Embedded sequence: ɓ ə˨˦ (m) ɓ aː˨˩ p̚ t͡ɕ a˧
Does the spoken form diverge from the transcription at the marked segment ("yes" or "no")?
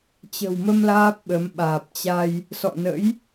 no